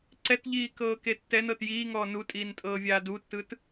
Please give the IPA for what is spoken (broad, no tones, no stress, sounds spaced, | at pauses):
ǀ ɛ t ʎ iː k ɤː k e tː ɛ n ɤ t j iː ŋ ɔː n u tʼ iː n tʼ ɤː vʲ aː d u tː ɯ t